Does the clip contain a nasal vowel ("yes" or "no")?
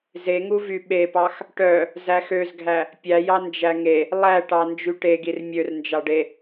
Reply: no